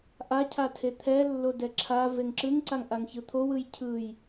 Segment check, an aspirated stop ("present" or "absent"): present